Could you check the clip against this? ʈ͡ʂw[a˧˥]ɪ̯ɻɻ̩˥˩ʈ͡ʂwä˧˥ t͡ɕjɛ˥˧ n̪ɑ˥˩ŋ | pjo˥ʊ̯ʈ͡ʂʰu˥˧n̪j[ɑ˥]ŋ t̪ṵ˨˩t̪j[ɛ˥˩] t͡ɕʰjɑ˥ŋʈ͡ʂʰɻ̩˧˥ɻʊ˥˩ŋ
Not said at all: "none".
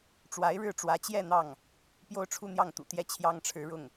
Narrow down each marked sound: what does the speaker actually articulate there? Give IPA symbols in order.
a˧˥, ɑ˥˩, ɛ˥˩

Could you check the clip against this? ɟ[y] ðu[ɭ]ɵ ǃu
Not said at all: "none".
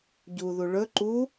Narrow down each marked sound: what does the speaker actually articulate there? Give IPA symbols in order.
u, ɭ

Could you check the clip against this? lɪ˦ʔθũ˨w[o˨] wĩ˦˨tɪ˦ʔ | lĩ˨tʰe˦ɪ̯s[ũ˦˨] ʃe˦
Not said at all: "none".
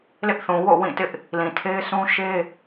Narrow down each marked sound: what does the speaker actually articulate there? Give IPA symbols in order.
o̰˦˨, ũ˦

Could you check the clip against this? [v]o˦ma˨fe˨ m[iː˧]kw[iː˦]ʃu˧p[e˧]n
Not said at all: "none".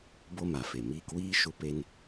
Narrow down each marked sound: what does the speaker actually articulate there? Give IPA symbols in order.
b, iː˧, iː˦, e˧

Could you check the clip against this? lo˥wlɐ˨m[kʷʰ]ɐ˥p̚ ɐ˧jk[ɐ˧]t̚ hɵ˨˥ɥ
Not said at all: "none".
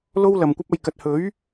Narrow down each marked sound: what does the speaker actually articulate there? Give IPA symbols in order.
kʷ, ɐ˧

